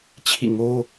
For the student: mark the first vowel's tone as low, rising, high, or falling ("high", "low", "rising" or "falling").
falling